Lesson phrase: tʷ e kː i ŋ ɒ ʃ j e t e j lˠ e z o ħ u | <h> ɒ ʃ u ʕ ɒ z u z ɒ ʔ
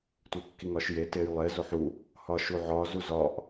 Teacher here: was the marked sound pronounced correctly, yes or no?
yes